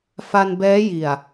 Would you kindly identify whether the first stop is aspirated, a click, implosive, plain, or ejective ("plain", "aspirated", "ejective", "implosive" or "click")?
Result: plain